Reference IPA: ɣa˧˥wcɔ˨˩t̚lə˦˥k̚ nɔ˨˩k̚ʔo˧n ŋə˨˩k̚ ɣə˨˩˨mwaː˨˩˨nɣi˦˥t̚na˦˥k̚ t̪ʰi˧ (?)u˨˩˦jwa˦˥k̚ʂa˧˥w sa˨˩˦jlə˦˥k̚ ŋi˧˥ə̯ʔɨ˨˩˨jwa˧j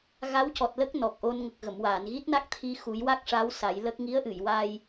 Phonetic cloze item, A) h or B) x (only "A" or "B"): B